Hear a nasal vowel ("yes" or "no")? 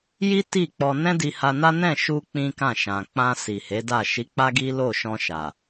yes